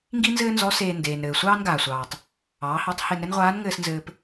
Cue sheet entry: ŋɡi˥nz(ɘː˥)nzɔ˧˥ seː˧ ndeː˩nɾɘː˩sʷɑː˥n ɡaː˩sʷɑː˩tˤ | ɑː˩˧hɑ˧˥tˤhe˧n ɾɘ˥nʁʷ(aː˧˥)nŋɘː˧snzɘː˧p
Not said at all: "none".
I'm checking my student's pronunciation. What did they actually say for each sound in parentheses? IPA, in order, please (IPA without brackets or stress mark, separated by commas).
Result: ɘː˥, aː˧˥